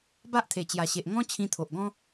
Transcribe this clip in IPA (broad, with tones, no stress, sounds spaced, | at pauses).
b a˦ ʔ t̪ʰ e˨˩ t͡ɕ j a˨˩ ɕ e˨ ʔ ŋ ɔ̃˦ t͡ɕʰ ĩ˧ t̪ʰ o˨ ʔ ɡ ɔ̃˦